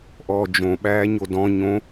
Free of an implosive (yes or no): no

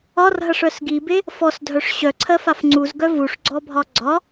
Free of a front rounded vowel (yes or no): no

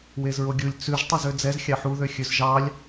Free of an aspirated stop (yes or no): yes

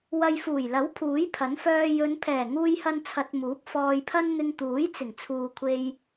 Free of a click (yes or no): yes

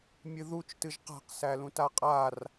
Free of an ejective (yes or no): no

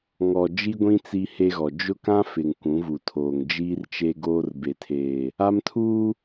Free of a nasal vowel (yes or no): no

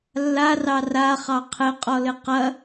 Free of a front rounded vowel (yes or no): yes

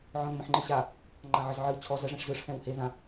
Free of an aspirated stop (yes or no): no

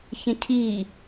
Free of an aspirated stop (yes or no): no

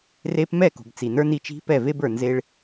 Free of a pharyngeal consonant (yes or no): yes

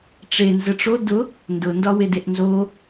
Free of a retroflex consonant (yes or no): no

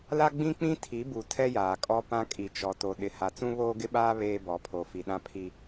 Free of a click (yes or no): yes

